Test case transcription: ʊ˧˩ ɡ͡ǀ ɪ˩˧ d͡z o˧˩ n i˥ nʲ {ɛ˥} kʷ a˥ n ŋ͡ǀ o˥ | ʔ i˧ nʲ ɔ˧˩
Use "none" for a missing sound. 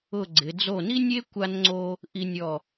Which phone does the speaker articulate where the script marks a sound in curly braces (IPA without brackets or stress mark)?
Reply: e˥